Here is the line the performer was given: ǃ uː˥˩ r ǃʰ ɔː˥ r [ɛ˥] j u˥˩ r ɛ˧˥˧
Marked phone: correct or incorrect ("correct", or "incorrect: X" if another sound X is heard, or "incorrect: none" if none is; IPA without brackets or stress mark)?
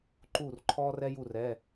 correct